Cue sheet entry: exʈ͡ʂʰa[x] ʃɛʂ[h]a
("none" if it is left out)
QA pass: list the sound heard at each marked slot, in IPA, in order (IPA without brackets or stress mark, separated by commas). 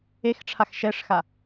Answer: x, x